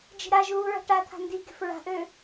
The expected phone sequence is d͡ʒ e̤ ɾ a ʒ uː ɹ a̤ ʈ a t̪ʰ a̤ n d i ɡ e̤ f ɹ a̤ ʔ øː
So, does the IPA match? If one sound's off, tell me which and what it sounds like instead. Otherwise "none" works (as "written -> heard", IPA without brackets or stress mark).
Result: none